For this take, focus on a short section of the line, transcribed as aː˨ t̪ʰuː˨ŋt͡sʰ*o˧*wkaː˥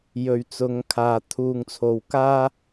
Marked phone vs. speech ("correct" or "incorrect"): incorrect